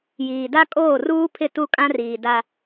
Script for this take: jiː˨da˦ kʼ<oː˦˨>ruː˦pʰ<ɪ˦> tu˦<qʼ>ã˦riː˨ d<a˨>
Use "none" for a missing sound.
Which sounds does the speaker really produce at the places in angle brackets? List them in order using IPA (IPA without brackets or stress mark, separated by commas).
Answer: oː˦˨, ɪ˦˨, kʼ, a˦